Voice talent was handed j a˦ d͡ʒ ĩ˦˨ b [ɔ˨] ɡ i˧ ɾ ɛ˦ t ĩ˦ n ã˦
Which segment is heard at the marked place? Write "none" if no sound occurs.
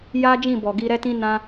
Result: ɔ˨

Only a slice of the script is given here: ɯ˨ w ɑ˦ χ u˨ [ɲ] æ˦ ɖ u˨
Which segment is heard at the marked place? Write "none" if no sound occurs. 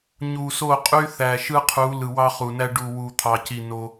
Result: n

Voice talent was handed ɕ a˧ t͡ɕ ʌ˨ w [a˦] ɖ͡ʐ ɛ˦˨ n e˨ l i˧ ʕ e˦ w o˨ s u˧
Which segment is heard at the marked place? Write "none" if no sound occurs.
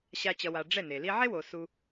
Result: a˨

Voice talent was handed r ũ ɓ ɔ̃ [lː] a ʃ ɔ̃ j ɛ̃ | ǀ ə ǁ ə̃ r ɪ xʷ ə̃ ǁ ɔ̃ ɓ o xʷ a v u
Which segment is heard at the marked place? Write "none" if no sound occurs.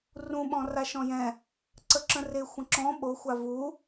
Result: r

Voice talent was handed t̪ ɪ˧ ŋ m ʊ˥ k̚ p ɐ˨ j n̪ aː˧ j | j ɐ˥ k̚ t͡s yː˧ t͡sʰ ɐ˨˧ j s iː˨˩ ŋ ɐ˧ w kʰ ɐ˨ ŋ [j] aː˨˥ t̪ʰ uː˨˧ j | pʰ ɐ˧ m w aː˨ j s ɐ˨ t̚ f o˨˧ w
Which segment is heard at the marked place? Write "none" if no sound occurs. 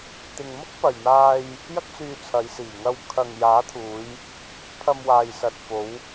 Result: j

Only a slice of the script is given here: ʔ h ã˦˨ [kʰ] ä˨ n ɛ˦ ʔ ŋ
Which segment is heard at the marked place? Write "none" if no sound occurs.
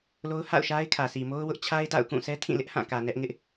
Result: k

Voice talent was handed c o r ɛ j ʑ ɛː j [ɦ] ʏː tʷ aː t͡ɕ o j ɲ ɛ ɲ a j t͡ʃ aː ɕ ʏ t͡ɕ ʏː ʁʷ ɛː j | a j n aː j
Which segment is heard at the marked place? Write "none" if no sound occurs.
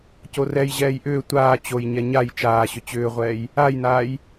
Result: ʔ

